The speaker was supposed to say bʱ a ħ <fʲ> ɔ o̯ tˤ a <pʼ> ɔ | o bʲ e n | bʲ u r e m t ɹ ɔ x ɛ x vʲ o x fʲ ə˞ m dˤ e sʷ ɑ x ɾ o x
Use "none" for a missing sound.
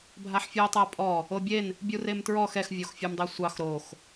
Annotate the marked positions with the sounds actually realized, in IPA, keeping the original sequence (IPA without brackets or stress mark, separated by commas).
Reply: fʲ, pʼ